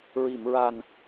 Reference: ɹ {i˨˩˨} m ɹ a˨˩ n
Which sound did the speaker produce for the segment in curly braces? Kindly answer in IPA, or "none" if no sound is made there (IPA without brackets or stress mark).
i˨˩˨